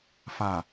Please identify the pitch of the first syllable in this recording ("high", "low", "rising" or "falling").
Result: low